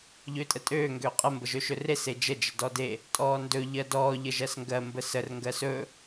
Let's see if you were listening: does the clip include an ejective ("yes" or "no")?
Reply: yes